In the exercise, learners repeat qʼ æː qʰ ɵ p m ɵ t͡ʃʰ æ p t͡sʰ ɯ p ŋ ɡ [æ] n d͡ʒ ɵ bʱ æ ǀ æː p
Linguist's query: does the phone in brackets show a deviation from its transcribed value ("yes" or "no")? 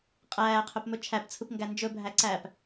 no